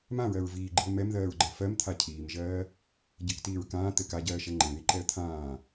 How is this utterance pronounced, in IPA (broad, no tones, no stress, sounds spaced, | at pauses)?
m ã ɹ ɜ ɹ v iː ɡ͡ǃ i ə̯ m ɛ m ð ɜː ɹ ɡ͡ǃ ɜ f ɜ m t̪ʰ a cʰ iː m ʒ ɜː | ɟ ɘ k t iː ɹ k ãː t̪ ɘ k a ɟ ɜː ʃ ɛ ŋ͡ǃ ɛ̃ ð i ǃ ɛ ə̯ t̪ʰ ãː